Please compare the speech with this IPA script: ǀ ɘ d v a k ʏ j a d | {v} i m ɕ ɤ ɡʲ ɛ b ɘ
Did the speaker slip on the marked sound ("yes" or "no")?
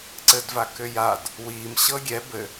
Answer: yes